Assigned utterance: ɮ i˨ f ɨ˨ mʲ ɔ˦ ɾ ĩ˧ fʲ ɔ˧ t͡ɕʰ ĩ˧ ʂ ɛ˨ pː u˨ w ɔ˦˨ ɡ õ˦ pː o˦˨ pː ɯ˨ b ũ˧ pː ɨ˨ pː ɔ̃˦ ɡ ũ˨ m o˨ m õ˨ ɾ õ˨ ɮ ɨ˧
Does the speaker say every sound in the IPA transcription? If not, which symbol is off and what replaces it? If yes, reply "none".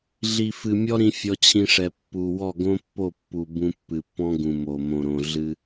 ɯ˨ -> u˨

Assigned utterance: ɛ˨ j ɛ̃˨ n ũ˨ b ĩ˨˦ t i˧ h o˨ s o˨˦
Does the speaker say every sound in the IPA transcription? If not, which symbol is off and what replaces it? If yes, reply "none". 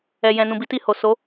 ĩ˨˦ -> i˨˦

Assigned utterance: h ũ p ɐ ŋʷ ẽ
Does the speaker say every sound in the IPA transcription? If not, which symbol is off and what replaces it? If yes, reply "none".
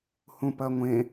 none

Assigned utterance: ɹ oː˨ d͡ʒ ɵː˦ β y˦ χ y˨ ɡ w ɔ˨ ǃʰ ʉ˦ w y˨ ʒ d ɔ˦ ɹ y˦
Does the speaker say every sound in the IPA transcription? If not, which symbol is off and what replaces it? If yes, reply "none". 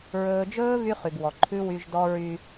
oː˨ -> ɵː˨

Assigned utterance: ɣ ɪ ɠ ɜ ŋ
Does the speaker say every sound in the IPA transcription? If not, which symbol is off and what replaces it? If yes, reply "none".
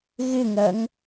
ɠ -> ŋ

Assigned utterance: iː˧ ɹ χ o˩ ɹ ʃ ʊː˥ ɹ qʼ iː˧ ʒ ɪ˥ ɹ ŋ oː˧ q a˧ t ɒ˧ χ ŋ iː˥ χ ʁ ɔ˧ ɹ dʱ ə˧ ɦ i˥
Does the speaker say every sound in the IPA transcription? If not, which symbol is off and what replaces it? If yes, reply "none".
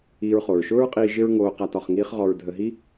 none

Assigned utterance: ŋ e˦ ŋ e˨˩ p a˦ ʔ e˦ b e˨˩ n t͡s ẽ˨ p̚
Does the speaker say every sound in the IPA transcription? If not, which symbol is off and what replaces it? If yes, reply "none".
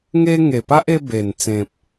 none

